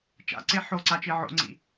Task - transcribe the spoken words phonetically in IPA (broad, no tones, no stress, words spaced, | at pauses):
t͡ʃa̰ǀe ħoǀat͡ʃi ʕo̰ŋ͡ǀḭ